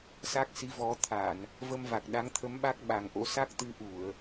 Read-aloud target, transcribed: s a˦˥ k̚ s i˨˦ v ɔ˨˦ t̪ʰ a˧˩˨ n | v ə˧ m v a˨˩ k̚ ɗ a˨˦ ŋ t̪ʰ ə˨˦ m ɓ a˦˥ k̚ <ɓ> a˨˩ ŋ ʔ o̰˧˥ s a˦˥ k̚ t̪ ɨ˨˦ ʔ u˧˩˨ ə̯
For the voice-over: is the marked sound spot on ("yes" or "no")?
yes